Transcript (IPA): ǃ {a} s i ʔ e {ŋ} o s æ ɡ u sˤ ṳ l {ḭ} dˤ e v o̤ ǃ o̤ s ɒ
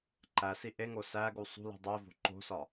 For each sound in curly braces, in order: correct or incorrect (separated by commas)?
incorrect, correct, incorrect